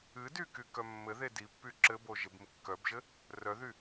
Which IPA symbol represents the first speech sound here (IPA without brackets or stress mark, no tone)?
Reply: ɨ